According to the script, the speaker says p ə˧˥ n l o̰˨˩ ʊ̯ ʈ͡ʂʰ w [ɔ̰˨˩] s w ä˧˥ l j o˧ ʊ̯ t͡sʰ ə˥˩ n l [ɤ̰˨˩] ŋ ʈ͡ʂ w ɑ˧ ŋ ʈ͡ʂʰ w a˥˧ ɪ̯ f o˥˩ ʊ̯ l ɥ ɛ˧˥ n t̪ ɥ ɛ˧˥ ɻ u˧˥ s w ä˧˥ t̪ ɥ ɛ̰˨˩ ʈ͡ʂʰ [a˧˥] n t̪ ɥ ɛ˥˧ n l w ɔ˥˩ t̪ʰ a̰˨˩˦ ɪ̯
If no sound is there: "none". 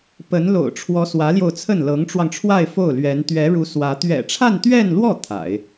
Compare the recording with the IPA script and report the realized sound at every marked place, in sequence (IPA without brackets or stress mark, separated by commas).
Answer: ɔ˧˥, ɤ˧˥, a˥˧